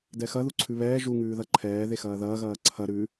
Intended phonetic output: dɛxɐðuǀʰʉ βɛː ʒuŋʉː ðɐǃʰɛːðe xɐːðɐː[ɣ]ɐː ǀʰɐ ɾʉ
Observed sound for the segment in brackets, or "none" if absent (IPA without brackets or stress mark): ɣ